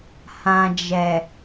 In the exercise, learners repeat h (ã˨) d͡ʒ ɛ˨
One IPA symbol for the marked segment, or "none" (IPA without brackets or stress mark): ã˨